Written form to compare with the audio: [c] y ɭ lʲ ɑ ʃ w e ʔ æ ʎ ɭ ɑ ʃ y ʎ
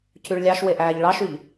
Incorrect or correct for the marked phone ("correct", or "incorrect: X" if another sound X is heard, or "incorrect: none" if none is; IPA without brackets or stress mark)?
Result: correct